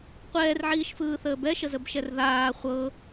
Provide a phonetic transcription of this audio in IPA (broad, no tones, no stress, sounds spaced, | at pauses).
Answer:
qʷ ɛː r ʕ iː ʃ f ɯː θ əː b ɛ ʃ ə z ə b ʃ ɛ r ð aː χʷ ɤ